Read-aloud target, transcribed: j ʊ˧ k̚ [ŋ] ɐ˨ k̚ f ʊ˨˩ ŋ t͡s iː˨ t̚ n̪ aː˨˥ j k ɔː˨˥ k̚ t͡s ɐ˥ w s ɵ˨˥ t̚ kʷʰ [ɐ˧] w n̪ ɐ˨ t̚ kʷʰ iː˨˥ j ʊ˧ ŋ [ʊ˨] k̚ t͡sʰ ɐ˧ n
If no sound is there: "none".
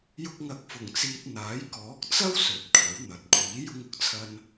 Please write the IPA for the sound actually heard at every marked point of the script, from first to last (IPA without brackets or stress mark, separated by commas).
ŋ, ɐ˨˥, ʊ˨˥